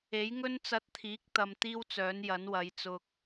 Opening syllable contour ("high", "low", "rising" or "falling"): rising